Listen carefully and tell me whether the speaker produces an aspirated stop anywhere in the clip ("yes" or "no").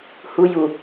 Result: no